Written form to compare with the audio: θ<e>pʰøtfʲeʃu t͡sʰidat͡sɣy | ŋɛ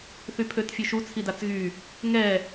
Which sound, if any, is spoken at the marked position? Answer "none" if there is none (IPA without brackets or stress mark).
y